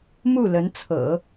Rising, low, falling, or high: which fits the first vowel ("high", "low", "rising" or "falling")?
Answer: falling